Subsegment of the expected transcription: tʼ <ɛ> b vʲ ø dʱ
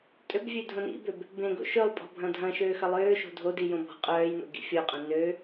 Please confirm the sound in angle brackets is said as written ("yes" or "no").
no